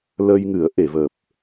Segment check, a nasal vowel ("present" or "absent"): absent